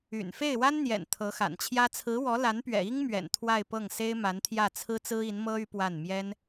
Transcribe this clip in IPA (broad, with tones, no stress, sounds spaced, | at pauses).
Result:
y̰˨˩ n f e˥˩ ɪ̯ w a˥ n n̪ j ɛ̰˨˩ n t̪ʰ ɤ˧˥ x a̰˨˩ n t͡ɕʰ j ä˥ t͡sʰ ɹ̩˧˥ w ɔ˧˥ l a˧˥ n p ɥ ɛ̰˨˩ i˥ ŋ m ɥ ɛ̰˨˩ n t̪ʰ w a˥˧ ɪ̯ p ɤ˥˩ ŋ s e˥ ɪ̯ m a˧˥ n t̪ʰ j ä˥˩ t͡sʰ ɹ̩˥ t͡s ɹ̩˥ i˧˥ n m ɤ˥ y˧˥ p w a˥˩ n m j ɛ˥ n